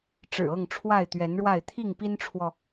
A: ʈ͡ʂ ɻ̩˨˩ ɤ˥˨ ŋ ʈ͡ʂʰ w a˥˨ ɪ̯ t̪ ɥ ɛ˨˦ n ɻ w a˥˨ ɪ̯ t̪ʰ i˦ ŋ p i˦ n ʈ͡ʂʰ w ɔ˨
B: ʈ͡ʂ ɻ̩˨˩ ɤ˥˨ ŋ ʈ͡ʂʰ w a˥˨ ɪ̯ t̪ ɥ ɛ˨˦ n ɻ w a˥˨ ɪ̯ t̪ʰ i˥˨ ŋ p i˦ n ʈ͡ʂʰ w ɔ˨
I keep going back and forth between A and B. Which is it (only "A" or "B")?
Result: B